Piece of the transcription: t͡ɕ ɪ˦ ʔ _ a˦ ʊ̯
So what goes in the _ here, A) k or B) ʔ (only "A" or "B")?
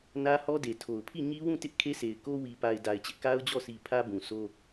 A